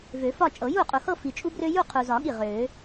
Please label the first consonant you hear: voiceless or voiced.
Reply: voiced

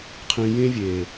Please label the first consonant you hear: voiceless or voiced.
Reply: voiceless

